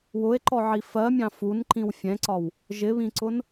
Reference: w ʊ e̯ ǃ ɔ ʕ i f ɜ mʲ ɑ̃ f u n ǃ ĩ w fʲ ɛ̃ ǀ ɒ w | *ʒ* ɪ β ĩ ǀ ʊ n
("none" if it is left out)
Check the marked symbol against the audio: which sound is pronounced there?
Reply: ʒ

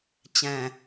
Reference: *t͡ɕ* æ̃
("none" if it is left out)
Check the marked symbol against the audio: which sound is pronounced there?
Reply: t͡ɕ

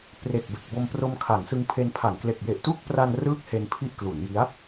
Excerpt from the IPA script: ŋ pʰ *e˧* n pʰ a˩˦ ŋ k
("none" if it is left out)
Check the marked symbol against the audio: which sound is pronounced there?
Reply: e˧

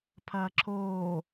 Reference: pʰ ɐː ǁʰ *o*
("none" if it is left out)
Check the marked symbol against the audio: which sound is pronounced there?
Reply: oː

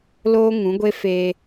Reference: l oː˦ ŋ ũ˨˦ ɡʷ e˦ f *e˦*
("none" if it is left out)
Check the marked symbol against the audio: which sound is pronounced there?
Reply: e˦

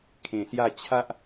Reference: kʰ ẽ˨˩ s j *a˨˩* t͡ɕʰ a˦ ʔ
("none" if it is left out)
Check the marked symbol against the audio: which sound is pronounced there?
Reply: a˥˧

